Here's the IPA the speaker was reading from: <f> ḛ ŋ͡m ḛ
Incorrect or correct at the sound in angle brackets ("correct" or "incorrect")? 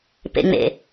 incorrect